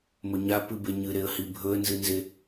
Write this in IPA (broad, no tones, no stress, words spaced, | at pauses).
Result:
mɵɲa pɨbeɲɨɾeə̯ hibʱɵə̯nzɨnze